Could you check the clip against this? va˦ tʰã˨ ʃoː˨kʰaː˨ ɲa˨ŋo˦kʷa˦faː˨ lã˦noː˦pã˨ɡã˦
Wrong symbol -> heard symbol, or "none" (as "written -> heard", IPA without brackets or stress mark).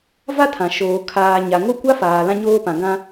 n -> ɲ